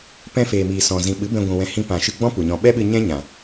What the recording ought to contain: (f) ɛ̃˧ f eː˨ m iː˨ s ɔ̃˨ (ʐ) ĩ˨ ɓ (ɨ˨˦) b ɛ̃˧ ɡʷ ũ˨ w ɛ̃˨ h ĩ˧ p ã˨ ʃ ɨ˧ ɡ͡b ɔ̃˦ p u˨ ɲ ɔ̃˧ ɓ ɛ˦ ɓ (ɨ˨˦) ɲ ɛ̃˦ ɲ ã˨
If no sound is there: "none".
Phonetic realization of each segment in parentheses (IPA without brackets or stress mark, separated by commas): p, z, ɨ˨˦, ɨ˧